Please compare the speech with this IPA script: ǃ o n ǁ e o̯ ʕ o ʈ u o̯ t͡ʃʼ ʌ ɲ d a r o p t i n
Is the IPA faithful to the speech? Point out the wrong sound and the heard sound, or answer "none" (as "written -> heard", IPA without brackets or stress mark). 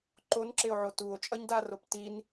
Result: ʈ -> t